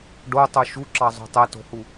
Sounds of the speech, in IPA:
ɖ o tˤ o ʃ u ǁ ɑ zˤ o̤ tˤ ɛ t o̤ h u

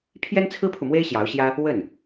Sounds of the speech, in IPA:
pʰ j ɛ˥ n t͡sʰ ɹ̩˥ pʰ u˨ m w e˥ ɪ̯ ɕ j ɑ˧˥ ʊ̯ ɕ j ä˥ | w ə˥˩ n

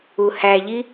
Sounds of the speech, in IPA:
u h æ ʎ i

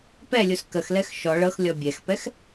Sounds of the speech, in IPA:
p ɛ lʲ u s k ə x l ɛ x ʃ ɔ ɭ ɤ x lʲ ɔ bʲ ɛ x p ɛ x

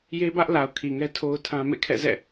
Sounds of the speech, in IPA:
j e˦ b ä˦ ʔ l a˨ ʊ̯ kʰ i˨ ŋ ɛ˦ tʰ o˦ ʊ̯ tʰ ã˦ m ḛ˦˨ kʰ ɛ̰˦˨ z ɛ̰˦˨

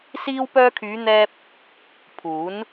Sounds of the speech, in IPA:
s iː˧ w p œː˧ kʰ yː˨˧ n̪ ɛː˧ p̚ | pʰ uː˨˥ n

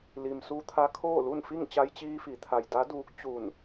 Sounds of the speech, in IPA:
l i˩ m s u˧ t̪ʰ a˧ kʰ oː˥˨ l u˥˨ n f i˥˨ ŋ t͡ɕ a˧ j t͡ɕ iː˧ f i˩˧ t̪ʰ a˩ j d a˧˥ d uː˧˥ k̚ t͡ɕ u˧˩ n

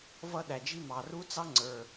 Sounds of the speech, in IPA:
v ʌ˥ ɗ æ˩ d͡ʒ i˥ m ɑ˩ r u˥ t͡s ɑ˥ ŋ͡ǀ ə˞˩

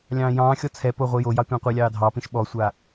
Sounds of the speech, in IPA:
lʲ ɑ̃ː j ɑ̃ː xʲ ɔ t͡sʰ ɛ p o ʁʷ i j o j ɑ tʷ ɑ̃ qʷ i lʲ ɑː dʱ ɑ p ĩ ʃ ɓ ɔ sʷ a

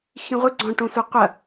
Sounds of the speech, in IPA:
x ĩ ʁʷ ɨ ɡ͡ǀ ɔ̃ ʈ õ sʷ e qʷ ɐ

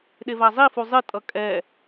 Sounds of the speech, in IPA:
ɗ e v a zˤ i f u zˤ ɨ tʼ ʌ kʼ ɛ

